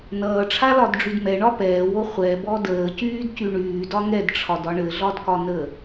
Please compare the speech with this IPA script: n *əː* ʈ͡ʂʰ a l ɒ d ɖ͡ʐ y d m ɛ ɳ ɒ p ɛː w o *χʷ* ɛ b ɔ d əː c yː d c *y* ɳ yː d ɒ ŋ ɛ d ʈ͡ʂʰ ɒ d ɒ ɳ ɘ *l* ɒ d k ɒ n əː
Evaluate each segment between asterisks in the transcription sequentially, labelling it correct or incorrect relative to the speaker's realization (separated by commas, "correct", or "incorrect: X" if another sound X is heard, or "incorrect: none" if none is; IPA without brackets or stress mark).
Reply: incorrect: ʌː, correct, correct, incorrect: ɮ